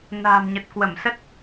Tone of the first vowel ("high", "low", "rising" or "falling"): low